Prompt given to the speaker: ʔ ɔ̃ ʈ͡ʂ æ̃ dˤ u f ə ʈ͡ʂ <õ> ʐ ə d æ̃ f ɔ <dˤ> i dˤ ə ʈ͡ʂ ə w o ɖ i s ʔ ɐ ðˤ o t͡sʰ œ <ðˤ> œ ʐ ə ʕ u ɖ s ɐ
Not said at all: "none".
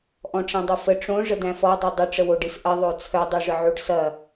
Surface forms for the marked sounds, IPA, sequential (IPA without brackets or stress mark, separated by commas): õ, dˤ, dˤ